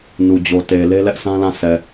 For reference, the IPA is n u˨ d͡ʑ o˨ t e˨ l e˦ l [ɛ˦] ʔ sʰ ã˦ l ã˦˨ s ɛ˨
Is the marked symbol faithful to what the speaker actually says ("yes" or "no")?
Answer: yes